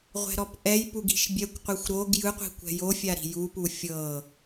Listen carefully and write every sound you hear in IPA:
ʁʷ ɛ̤ ɾ ɔ p ʔ ɛ j p u ɡ i̤ ʃ bʲ ɛ kʷ qʷ e xʷ ɾ o ɡ j ɯ qʷ i̤ kʷ ɛ̤ j o fʲ a ɾ i̤ j u p u fʲ ɤ

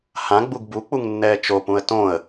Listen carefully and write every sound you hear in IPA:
h ã ɡ͡b u ɡ b u k͡p u ŋ nː ɛː t͡ʃ o p ũ ə̯ t õ ə̯

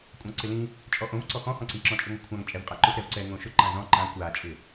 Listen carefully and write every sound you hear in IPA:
kʷʼ ã ǀ ɪ l ĩ | t͡ʃʼ ɔ ʔ õ v ǀ ɔ x ɔ̃ h ɔ̃ ǀ ĩ ǁ ɔ̃ t͡ʃʼ i ŋʷ a kʷʰ ã ŋ t͡ʃʼ ɛ v qʼ a ǃ ʊ x ɾ ɛ v ǀ ɛ ŋ õ ʃ ʊ ǃ ã z ɔ̃ ǃ ã kʷ a t͡ʃʼ ɪ

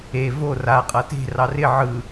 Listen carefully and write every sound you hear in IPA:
e v o r a qʼ ʌ t e̤ r ɑ r ɪ ʕ ɯ

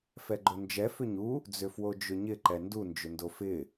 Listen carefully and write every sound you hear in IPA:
f ɛ ɡ͡ǃ o n d͡ʒ ɛ f ʏ ɲ u | d͡z ʏ f w o d͡ʒ ʏ ɲ ɪ ǃ ɛ n d u n d͡ʒ ʏ n d o f ɪ

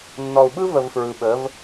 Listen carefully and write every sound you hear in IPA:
nː ɔ˨ u̯ ɓ ɯ˦ v ə˨ v f ɹ ɯ˨ ɓ ə˨˦ v

